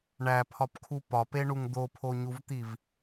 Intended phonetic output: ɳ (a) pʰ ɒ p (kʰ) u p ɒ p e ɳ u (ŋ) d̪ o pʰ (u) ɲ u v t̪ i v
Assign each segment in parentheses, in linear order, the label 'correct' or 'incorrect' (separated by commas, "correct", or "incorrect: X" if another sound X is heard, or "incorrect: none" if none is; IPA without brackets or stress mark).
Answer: incorrect: æ, correct, correct, incorrect: o